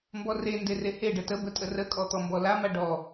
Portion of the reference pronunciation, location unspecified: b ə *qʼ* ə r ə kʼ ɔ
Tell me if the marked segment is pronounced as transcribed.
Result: no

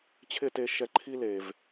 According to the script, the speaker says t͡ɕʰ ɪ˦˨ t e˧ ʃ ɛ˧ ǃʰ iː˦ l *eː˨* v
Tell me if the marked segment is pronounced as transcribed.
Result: yes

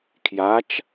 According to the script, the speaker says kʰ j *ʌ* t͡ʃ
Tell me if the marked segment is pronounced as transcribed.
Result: no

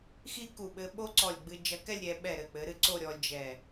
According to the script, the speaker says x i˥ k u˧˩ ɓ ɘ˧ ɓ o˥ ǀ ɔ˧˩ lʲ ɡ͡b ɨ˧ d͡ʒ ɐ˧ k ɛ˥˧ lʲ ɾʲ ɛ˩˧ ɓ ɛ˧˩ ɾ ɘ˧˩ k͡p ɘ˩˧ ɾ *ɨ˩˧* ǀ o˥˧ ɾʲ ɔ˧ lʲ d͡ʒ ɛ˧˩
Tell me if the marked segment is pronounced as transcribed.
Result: no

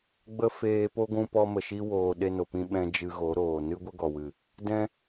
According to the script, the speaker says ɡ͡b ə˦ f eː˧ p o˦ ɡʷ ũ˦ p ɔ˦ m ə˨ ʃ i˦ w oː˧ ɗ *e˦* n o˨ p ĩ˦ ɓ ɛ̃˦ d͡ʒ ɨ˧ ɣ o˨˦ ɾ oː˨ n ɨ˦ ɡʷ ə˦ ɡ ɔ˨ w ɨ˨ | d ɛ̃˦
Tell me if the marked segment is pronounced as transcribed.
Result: yes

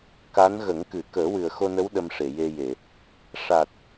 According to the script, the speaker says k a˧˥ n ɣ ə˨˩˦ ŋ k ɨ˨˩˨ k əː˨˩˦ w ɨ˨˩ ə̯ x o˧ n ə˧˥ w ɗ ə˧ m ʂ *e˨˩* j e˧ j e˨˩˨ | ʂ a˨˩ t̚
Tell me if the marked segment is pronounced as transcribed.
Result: no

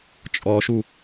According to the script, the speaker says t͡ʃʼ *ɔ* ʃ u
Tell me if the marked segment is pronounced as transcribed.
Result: yes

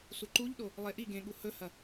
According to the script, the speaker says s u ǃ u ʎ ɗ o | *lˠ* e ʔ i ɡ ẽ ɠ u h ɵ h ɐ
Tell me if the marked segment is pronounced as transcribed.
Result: yes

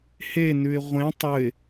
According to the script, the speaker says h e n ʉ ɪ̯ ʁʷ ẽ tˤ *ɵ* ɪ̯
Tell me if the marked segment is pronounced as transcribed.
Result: yes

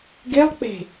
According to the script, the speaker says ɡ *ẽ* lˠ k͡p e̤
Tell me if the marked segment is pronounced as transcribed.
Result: no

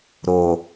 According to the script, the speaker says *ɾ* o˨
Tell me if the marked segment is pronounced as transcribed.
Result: yes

